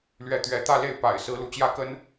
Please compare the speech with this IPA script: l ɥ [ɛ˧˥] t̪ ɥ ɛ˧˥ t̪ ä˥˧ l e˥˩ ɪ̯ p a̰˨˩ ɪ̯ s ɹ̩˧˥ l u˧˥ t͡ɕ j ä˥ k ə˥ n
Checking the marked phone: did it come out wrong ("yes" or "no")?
no